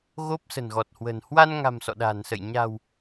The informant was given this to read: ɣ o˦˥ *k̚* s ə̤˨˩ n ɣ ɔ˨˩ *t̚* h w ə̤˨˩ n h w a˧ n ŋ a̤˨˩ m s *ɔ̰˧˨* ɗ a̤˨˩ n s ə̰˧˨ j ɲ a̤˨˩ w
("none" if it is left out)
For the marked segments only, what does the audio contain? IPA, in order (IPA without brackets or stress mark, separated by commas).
p̚, t̚, ɔ̰˧˨